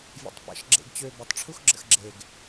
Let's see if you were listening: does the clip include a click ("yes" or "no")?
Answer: yes